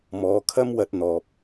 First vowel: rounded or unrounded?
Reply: rounded